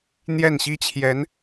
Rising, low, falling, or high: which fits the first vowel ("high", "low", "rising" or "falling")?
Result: falling